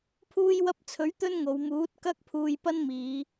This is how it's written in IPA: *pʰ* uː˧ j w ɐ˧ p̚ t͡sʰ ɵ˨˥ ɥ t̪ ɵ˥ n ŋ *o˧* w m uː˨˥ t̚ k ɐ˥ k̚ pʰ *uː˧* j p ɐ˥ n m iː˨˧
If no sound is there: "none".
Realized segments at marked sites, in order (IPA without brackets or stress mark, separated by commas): pʰ, o˨˧, uː˧